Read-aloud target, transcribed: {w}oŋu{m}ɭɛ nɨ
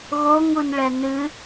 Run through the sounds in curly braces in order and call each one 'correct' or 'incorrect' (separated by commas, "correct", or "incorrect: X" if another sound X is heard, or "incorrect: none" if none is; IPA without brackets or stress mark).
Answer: incorrect: ɣ, incorrect: n